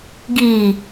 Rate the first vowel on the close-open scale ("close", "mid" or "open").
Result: close